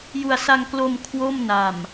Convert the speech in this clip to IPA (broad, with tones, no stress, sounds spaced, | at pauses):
j u˧ a̯ s a˧ ŋ k l o˧ m kʰ w o˥˩ m n a˨˩ m